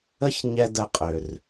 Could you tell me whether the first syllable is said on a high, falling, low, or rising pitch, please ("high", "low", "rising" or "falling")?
high